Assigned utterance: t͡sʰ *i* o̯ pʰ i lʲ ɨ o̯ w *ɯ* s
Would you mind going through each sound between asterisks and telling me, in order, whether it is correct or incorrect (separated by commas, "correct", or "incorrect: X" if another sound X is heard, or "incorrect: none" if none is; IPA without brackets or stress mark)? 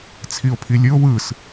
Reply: correct, correct